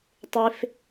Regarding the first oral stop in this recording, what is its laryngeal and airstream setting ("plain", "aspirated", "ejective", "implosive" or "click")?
plain